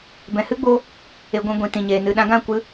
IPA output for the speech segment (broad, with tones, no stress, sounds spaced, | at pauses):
b ɛ̃˨ h ɨ˦ ɡ͡b o˧ | e˨ ɡʷ ĩ˨ ɡʷ ĩ˨ t ĩ˨ ɲ eː˨ n ɨ˨ ɗ ã˧ ɡ ã˦˨ kʷ ɨ˧